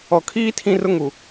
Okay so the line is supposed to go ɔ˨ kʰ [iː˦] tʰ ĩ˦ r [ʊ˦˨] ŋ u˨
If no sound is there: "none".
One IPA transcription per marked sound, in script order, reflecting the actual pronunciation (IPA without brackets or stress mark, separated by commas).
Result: iː˦, ʊ˦